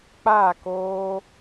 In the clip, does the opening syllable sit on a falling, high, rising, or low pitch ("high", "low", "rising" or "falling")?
falling